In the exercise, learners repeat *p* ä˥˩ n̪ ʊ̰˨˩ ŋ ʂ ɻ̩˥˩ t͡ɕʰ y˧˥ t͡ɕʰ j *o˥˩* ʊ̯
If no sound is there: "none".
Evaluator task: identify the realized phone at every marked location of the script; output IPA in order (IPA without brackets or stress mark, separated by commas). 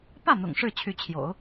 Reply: p, o̰˨˩˦